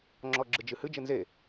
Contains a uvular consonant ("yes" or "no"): no